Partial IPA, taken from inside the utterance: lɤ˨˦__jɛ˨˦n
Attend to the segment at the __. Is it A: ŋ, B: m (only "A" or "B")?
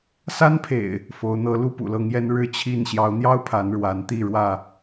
A